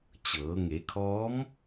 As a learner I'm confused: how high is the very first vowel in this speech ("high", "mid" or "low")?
mid